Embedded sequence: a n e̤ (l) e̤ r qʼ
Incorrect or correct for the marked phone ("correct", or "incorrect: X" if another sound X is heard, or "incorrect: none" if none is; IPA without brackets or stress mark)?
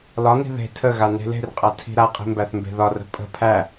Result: correct